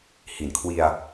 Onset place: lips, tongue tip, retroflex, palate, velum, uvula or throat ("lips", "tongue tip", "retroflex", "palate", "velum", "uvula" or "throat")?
throat